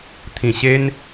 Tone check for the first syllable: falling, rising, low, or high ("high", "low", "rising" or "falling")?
low